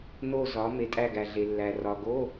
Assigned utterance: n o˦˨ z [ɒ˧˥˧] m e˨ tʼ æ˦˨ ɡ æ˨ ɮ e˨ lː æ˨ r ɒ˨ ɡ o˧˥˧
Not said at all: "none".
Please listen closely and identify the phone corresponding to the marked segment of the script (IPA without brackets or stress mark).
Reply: ɒ˨˦